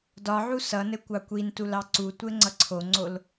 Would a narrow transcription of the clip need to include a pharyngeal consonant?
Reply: yes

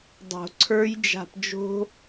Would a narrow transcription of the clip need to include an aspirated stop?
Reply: yes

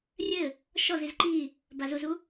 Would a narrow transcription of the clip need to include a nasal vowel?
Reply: no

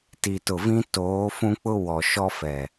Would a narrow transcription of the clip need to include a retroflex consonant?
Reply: no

